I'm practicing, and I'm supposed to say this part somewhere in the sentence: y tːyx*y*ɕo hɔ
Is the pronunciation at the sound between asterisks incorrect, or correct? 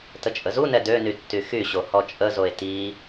correct